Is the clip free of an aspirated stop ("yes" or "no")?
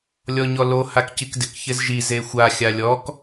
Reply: yes